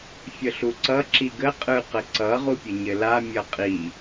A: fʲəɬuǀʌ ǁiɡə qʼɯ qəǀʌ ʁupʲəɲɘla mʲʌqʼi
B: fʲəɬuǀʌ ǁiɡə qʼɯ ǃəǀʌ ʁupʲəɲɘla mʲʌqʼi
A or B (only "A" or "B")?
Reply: A